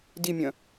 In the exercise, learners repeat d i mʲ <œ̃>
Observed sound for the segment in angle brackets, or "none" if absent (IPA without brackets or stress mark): œ̃